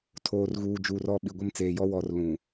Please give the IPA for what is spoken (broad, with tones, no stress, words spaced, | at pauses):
tʰoː˨rɣuː˨ d͡ʒuː˨rɔ˦˨ ɓi˨ɡʷɪ˦˨mt͡seː˨jɔ˦ wɔ˨r lũ˨